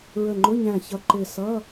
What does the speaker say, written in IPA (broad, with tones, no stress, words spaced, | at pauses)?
ɹə˧˩ŋ͡ǃʊ˧˥˧ɲæ̃˧˩ çʌ˧˩ǃɪ˧˩sʌ˧˥˧